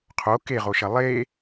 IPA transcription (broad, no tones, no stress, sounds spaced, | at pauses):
qʰ o k e ʁ o ʃ ɐ lˠ e